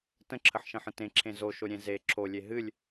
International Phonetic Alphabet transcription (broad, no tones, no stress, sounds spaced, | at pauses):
t ə̃ ǁʰ ə ħ ʃ ə̃ ħ ə̃ t ẽ ǁʰ ẽ z o ʃ o ɾʲ ẽ z e ǁʰ o lʲ e ɦ ɨ lʲ